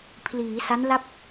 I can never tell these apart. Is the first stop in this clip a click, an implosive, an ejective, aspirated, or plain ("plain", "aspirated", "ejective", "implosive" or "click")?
aspirated